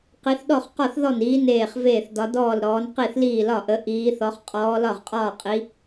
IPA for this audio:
q i˨˦ θ ɗ ɔ˥˩ χ q ɔ˥˩ θ ð ɔ˥˩ n iː˨˦ n eː˥˩ χ v eː˥˩ θ d ɒ˨˦ d ɔː˥˩ l ɾ ɔː˨˦ n q i˥˩ θ l iː˥˩ l ɒ˥˩ ʔ ə˨˦ ʔ iː˨˦ θ ɔ˨˦ χ qʼ ɔː˨˦ l ɒ˥˩ ʁ qʼ ɒː˥˩ qʼ i˨˦

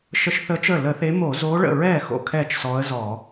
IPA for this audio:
ʃ ə˧˥ ʃ θ əː˧˥ t͡ʃ əː˥˩ l ə˧˩˧ θ e˧˥ m o˧˩˧ z oː˧˥ ɭ ə̰˥˩ ɹ ɛː˥˩ x o̰˥˩ kʰ ɛː˥˩ t͡ʃ s ɔː˧˥ ə̯ z ɔː˧˩˧

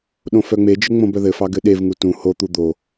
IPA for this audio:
ɗ õ f œ ŋ͡m e d͡ʒ ɘ ŋ͡m õ b œ ð ɘ f ɑ ɡ ɘ ɗ e v ŋ u t ũ h o t̪ u d̪ o

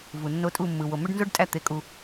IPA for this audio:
v u˨ nː o˦ tʼ u˦˨ mː ɯ˨ w o˨ m ø˦ ɖ n z o˦ ɖ tʼ æ˦ t̪ e˧ kʼ u˧

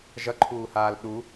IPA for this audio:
ʒ ʌ ǃʰ uː h aː l ɗ u

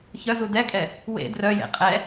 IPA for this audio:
ç œ z u d ɛ kʼ ɛ | w ḛ d r œ j ḛ qʼ ɛ

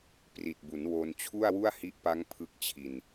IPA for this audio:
p r i˨˩ t̚ b u˩˦ n w o˧ n t͡ɕʰ u˥˩ a̯ w u˥˩ a̯ h i˦˥ ʔ p a˦˥ ŋ pʰ ɯ˦˥ k̚ t͡ɕʰ i˧ n

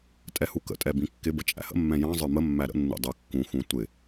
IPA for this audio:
tʼ ɛ h u k ə̰ tʼ ɛ b ĩ kː ɪ b ə t͡ʃʼ æ̰ h ə̰ mː ɛ̃ j ɑ̃ zˤ ə˞ m ə mː æ ɾ ə̰ nː ṵ dˤ ə˞ kː ũ x ũ tʷ ɪ

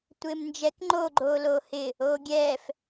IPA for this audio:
tʷ ɪː m n d͡ʒ ɛ k ŋ͡ǃ o ɡ͡ǃ oː l oː h ɪ | oː ɡʲ ɛː f

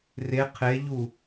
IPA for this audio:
r e qʰ e ʎ u

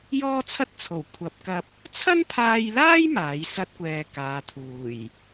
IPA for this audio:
j ɔː˥ t͡sʰ ɐ˥ t̚ t͡sʰ o˨˩ w kʷʰ ɐ˨˥ p̚ k ɐ˧ p̚ | t͡sʰ ɐ˥ n pʰ aː˧ j l aː˥ j m aː˨˥ j s ɐ˥ t̚ kʷ ɛː˧ k aː˨˧ t̪ʰ uː˨˩ j

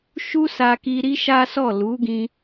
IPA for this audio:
ʃ u˦ s a˧ k i˧ ɾ i˦ ʃ a˦ s ɔ˦˨ l u˨˦ ɡ ĩ˧

